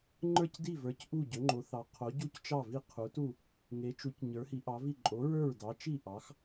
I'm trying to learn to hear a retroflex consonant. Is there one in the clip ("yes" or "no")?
no